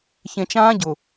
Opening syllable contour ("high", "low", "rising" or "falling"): low